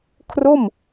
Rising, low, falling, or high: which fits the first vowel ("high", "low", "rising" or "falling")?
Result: falling